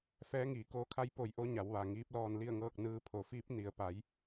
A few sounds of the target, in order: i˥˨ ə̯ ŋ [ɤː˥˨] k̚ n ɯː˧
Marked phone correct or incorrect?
correct